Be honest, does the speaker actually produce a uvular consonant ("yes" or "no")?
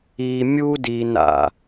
no